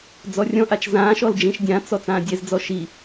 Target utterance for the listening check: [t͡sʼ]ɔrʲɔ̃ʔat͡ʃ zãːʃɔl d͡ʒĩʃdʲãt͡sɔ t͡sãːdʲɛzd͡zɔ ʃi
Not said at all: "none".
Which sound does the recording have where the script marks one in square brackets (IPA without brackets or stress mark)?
d͡z